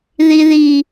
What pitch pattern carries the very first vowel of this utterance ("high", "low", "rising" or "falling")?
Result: high